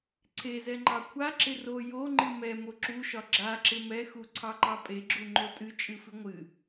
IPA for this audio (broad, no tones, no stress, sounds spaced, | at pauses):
ǀʰ e z ɛ ŋ͡ǃ ɑ kʷʰ a ǁ ɪ r o j o ŋ͡ǃ ɨ m ɛ m o ǁ u ʃ ɒ ɡ͡ǁ a ǁ ɪ m ɛ x u ǀʰ ɑ ǃ ɑ pʼ e ɡ͡ǁ u ŋ͡ǃ o tʼ ɨ t͡ʃʼ ɨ f ɨ ŋʷ ɨ